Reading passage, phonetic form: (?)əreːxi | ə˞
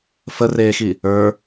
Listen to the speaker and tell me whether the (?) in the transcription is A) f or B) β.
A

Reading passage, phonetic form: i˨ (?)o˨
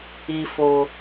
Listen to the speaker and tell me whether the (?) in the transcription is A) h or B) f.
B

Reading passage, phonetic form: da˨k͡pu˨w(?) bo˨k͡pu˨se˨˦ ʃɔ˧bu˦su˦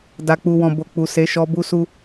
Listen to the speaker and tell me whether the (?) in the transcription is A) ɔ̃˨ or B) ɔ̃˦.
A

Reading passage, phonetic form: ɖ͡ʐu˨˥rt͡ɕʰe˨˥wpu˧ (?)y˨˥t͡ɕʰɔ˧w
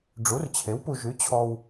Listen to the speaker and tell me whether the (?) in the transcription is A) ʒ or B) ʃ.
A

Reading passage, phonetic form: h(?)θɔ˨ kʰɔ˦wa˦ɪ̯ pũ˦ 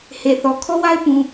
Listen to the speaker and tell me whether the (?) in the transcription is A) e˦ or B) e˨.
B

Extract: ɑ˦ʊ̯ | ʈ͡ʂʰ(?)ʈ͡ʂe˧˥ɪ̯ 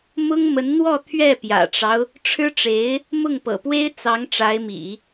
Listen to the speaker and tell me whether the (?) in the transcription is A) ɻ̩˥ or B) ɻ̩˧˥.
A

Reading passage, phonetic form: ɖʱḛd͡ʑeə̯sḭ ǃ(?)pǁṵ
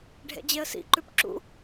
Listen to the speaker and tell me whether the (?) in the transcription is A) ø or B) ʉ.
B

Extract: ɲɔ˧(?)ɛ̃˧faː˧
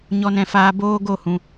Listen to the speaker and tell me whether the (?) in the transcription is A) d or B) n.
B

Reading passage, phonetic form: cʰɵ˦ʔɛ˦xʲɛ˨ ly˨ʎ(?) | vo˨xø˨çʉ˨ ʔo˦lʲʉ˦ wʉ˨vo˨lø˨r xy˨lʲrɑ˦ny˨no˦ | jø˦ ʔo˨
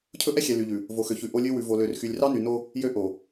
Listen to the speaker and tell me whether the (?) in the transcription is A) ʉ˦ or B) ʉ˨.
B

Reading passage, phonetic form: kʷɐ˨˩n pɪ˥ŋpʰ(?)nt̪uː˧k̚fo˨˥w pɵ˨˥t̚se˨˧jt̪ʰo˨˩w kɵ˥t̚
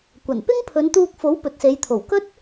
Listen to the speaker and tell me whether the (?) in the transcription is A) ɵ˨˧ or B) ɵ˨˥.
A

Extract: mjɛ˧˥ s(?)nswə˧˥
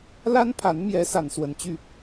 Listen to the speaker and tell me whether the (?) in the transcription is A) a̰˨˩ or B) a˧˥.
B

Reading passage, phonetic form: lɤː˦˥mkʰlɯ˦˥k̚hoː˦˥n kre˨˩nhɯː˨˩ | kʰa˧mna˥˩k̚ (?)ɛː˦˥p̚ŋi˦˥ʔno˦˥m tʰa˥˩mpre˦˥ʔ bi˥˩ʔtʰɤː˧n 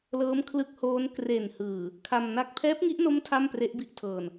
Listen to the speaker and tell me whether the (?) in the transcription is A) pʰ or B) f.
A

